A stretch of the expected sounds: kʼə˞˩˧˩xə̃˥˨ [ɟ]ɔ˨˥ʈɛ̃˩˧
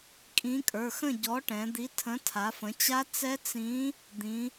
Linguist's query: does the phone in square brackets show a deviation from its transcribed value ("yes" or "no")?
no